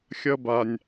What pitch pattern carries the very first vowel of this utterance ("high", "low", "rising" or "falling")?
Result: high